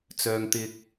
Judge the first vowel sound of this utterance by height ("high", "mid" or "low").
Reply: mid